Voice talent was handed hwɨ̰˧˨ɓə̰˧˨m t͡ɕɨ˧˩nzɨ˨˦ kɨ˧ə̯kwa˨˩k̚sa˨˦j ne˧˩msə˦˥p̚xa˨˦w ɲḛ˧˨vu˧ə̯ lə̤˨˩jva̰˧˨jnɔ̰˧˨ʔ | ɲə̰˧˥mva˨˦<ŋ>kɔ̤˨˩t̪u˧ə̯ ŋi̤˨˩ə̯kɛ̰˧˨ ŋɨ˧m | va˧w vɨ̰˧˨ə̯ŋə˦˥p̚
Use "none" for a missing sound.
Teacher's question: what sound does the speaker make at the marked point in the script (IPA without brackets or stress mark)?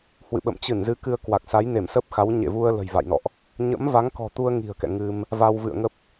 ŋ